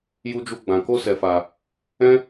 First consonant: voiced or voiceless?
voiced